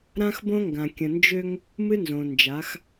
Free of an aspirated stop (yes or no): yes